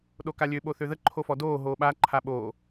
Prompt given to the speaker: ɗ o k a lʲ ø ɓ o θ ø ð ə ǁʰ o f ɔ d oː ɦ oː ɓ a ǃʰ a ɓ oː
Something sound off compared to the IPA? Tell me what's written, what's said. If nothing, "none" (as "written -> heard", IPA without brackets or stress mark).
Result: ǁʰ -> ǃʰ